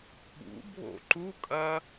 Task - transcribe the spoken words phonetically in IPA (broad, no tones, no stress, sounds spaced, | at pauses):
ɓ ṵ bʱ o̰ ǃ u kʼ ɐ